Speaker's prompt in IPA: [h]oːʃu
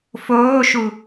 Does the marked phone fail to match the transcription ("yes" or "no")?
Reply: yes